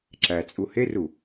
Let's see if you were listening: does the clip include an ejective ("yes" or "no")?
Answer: yes